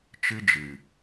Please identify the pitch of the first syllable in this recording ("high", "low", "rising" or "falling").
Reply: high